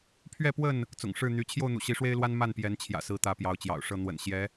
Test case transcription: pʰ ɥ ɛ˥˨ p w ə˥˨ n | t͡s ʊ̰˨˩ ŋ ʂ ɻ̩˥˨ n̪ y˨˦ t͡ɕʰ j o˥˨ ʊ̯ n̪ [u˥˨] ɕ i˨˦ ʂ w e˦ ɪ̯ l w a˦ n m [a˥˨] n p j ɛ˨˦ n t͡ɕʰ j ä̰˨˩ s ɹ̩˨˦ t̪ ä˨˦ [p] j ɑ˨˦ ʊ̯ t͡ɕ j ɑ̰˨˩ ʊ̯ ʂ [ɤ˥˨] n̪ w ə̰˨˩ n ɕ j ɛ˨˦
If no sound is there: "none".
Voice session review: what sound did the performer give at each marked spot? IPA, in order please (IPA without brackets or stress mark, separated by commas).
ṵ˨˩, a˥˨, p, ɤ˥˨